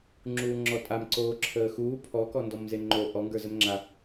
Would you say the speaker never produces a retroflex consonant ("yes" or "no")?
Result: yes